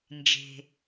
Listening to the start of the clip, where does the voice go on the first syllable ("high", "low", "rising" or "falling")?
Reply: low